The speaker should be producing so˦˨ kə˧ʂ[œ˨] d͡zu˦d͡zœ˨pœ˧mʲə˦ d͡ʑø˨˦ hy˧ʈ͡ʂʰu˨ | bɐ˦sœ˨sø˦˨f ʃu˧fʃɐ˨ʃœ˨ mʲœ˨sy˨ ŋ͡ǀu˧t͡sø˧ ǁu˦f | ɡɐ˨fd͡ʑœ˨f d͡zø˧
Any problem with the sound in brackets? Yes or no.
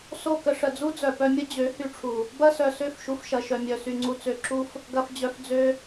yes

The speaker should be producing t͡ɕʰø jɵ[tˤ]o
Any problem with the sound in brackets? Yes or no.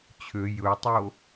no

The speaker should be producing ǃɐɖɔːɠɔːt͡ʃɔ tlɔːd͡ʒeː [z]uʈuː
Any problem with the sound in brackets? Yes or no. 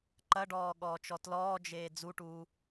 yes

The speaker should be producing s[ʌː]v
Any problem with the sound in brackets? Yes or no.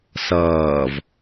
no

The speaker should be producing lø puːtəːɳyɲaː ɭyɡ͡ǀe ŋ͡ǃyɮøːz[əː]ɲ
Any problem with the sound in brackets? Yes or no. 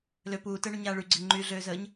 no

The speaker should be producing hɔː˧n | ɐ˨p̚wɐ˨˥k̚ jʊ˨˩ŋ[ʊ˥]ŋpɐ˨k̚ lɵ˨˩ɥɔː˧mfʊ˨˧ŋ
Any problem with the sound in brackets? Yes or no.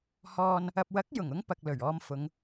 no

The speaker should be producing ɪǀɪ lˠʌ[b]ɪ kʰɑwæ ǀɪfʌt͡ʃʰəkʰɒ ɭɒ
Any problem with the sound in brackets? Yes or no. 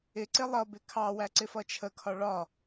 no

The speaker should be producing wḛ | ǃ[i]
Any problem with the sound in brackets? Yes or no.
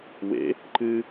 yes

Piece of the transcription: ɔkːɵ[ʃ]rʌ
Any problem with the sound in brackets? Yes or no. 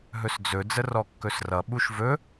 yes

